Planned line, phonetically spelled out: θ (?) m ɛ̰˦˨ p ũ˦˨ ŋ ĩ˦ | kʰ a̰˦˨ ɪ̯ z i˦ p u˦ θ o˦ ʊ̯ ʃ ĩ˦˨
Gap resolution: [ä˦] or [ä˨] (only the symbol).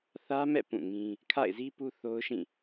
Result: ä˦